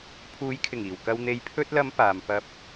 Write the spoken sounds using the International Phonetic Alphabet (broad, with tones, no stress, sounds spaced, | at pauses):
pʰ uː˨˧ j kʰ ɪ˨˩ ŋ iː˨˩ w k ɐ˨ w n̪ e˨ j pʰ ɵ˧ t̚ l ɐ˨˧ m p aː˨ m p ɐ˥ p̚